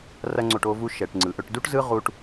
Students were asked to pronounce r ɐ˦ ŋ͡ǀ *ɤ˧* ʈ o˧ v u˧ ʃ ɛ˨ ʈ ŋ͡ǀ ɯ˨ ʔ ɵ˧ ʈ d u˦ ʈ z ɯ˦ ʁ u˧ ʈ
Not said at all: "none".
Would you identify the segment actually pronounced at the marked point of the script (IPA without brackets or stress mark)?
o˧